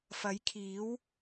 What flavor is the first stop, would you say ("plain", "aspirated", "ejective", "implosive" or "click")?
aspirated